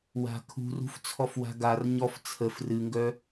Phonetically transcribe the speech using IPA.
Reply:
w a̤ kʰ ṳ r ṳ f t͡sʰ ɔ f w a̤ ɡ a r ɲ ɔ f t͡sʰ ə f r ɨ ŋ ɡ œ

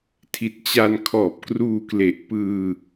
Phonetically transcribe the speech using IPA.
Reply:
tʰ i˨˩ t̚ t͡ɕ a˧ n kʰ ɔː˨˩ p̚ k r uː˧ k l e˨˩ ʔ p ɯː˧

